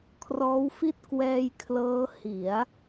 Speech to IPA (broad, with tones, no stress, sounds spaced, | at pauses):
kʰ r ɔː˦˥ w f i˥˩ t̚ k w ɛː˧ j kʰ l ɤː˦˥ h i˩˦ a̯